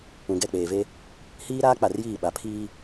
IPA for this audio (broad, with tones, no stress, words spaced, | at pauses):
ũ˨ɡɛ˦˨k͡peː˨ve˦ | hiː˦ ɾaː˦k͡pa˨rjiː˦˨ ɓa˨pʰiː˦